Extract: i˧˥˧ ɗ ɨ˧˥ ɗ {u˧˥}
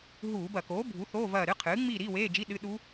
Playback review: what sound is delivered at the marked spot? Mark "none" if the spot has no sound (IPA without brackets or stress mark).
u˧˥